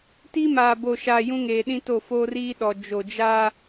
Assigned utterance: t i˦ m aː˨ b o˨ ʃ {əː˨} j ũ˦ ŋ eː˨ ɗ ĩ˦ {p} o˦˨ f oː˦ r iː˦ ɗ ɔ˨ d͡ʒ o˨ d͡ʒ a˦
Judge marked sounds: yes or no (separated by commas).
no, no